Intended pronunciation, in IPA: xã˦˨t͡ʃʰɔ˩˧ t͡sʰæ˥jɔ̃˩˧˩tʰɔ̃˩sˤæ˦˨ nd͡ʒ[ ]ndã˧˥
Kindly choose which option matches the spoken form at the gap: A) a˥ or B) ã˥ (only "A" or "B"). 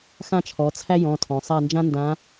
B